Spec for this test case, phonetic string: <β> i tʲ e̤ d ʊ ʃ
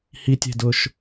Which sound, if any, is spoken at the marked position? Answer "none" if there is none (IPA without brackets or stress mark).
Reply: h